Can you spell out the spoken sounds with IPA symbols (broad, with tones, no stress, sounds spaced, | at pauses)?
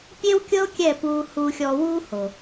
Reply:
pʲ e˦ w kʲ ɤ˦ o̯ kʲ ɛ˦˨ p uː˧ h uː˧ xʲ ɔː˧ w uː˦ h o˨